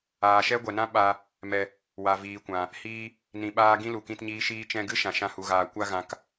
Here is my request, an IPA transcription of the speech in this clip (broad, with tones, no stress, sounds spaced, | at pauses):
aː˨ ʃ ɛ˦ ɡʷ ɛ˨ n ã˦ ɓ a˧ | m ɛ˧ | w a˨ v iː˨ kʷ ã˨ | h iː˦ | n ĩ˧ ɓ aː˦ ɡ ĩ˦ l u˨ k ĩ˧ t ɲ iː˧ ʃ iː˧ t͡ʃ ɛ̃˧ ɡ ɨ˦ ʃ ã˨ ʃ ã˧ h u˨ ɣ aː˨ kʷ a˧ ɣ ã˨ k